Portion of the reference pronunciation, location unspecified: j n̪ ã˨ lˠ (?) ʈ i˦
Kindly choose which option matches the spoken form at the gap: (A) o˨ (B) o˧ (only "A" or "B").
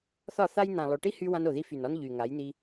A